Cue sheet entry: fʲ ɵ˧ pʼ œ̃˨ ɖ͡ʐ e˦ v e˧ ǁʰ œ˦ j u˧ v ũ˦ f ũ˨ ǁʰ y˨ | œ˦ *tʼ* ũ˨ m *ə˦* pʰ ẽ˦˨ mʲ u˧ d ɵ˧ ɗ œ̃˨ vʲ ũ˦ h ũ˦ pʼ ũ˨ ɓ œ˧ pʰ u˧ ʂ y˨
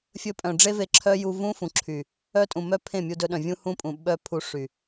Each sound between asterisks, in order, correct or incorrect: correct, incorrect: œ˦

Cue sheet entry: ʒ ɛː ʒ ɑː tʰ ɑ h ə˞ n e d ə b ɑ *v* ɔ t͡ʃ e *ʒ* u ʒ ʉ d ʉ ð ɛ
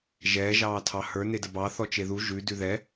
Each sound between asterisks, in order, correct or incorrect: incorrect: θ, incorrect: ð

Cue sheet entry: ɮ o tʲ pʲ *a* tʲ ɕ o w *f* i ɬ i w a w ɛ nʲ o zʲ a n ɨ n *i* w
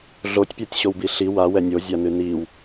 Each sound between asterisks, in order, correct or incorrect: correct, incorrect: b, correct

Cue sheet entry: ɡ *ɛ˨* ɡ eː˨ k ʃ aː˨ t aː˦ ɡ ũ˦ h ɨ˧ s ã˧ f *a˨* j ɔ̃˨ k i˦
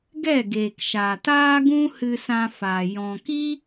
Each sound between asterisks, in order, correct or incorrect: incorrect: ɛ˦˨, correct

